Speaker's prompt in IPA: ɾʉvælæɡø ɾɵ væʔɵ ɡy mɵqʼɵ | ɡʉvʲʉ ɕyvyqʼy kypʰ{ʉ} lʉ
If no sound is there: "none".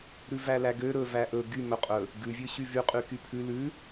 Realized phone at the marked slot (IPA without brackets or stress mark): ʉ